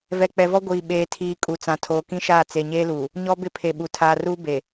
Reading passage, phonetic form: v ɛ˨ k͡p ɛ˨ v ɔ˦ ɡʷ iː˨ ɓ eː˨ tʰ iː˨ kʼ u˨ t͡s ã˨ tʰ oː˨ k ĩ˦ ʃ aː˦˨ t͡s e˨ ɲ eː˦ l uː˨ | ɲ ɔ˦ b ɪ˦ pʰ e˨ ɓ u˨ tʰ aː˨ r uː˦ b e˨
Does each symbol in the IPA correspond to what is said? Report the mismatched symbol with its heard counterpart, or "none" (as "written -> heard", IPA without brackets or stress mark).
none